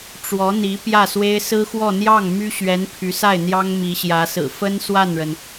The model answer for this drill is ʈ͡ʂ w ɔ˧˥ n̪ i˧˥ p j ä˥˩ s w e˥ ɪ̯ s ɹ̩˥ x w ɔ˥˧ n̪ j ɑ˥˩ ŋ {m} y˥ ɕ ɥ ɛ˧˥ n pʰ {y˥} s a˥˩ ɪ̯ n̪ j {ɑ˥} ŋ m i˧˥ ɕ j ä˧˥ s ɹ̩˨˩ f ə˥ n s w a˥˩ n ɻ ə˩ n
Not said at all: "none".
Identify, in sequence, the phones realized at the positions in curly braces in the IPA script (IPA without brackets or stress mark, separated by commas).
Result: m, y˧˥, ɑ˥